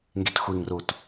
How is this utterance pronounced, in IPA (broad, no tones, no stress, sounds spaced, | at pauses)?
ŋ ɡ i t xʷ i ŋ r u t